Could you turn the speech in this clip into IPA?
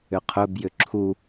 ʏqʰɵbjʏ ǁʰu

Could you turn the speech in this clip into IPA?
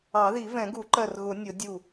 ɑ˨˩˦ði˨˩˦vɛ̃˨˩˦ɡu˨˩˦ ǃɜ˧˩rɣʊ˨˩˦ nʲʊ˨˩˦ dʲu˧˩

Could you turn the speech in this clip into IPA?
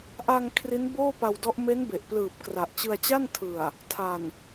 ʔa˧ŋ kʰri˦˥nboː˥˩pa˧wdɔ˦˥ʔ me˦˥nbe˨˩ʔplɯː˨˩p̚ kra˨˩ʔt͡ɕɯ˧a̯t͡ɕa˥˩n tʰɯ˨˩a̯ | tʰa˨˩n

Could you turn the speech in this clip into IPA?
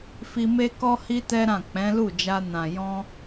fi˧me˦ kɔ˧hi˧ tɛ˦ɾã˦˨ k͡pɛ̃˨˦lu˦˨d͡ʒa˧nã˨ jɔ̃˧

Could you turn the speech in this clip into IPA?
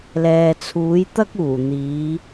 lɛː˨t͡sʰuː˨˥jt̪ɐ˥k̚ uː˨˩n̪iː˨˧

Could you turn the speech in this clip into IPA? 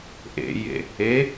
ʔḛjḛ | e

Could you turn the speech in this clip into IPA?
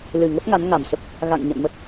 lɨ˨˩ŋə˦˥p̚ ŋa˨˦nŋa˨˩msə˦˥p̚ | ɣa̰˧˨ŋɲə̰˧˨nmə˦˥t̚

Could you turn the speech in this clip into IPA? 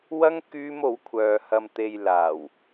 wɐ˥ŋ kyː˥mo˨˥wkʷʰœː˨ hɐ˨mt̪e˨j laː˨˩w

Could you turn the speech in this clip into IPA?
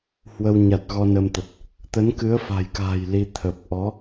hwə˧w ɲa˨˩t̚ ɣɔ˧nə˧mt̪ə˨˩t̚ | t̪ə˨˦nkɨ˨˦ə̯fa̤˨˩jka̤ː˨˩j li˧ t̪ʰə˨˩p̚ ʔɔ˨˦

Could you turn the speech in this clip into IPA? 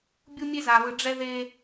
bʲu˦mʲe˦za˨βɯ˨ ɖ͡ʐɛ˦ðe˦

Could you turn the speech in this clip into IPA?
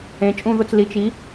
ẽ˩˧t͡ʃʼũ˦˨ðʊ˦˨t͡s li˩˧t͡ʃ i˩˧

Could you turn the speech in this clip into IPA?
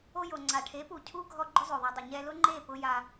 o˧jo˨ ŋ͡ǀa˨ ʈʰe˨˦pu˨ cʰu˦ ɡʱɔ˧ ɡ͡ǃʊ˦zˤo˨ðˤo˧dˤɪ˨ ɲɛ˧lʊ˦ŋ͡ǃe˦˨ pʊ˧ja˧

